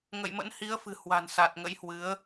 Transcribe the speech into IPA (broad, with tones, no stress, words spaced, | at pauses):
ŋə̰˧˨jmə̰˧˥n hi˨˦ə̯fɨ̤˨˩ hwa̤˨˩nsa˨˩t̚ŋə̰˧˥jhwɨ˨˦ə̯